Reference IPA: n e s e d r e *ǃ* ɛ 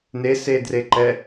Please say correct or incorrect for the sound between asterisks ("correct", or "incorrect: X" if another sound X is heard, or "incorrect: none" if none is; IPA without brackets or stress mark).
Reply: correct